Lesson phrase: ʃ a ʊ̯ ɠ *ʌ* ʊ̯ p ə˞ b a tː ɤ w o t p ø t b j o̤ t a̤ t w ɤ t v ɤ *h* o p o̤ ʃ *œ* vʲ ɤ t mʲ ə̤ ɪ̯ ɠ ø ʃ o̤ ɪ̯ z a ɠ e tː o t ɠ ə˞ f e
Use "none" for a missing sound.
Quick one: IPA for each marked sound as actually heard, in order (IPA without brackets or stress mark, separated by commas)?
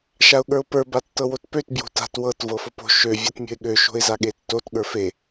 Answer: ə˞, f, ø